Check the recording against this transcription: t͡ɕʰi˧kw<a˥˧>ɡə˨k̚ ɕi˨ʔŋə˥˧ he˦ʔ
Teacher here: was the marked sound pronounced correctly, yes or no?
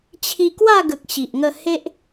yes